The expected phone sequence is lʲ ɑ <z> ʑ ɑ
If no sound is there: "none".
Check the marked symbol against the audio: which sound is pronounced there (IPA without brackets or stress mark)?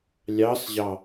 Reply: s